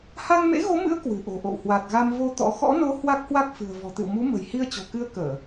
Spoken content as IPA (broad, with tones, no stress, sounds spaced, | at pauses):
h a˧ ŋ m ḛ˧˥ ɣ o˨˦ m ɨ̰˧˥ ə̯ k w ɨ̤˨˩ ʔ o̤˨˩ ʔ o̰˧˨ w h w a˨˩ t̚ ɣ a˧ m v o˧ t̪ ɔ̰˧˥ x ɔ̰˧˥ n o˨˦ h w a˦˥ k̚ h w a˦˥ k̚ f ɨ̤˨˩ ə̯ v ɔ̤˨˩ t̪ ɨ̰˧˨ w m u˨˦ m ə̤˨˩ j h i˧ ə̯ t͡ɕ o̤˨˩ k ɨ˧ ə̯ k əː˧˩˨